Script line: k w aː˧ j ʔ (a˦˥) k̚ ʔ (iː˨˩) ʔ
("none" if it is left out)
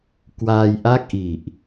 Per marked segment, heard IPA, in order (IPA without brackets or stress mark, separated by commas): a˥˩, i˨˩